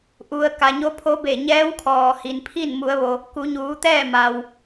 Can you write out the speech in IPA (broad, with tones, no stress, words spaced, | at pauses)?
ʔu˩ə̯ ka˩ɲo˧˥pʰo˧˥be˧˩ ɲɛː˧˥wkʰɔː˩hi˩npʰi˥˨n mu˩˧ə̯ʋo˩ | ku˩˧ɲuː˩˧t̪ɛː˥˨ ma˩w